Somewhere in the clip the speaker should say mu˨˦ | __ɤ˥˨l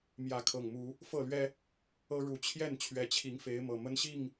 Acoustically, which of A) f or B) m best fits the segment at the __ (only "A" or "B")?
A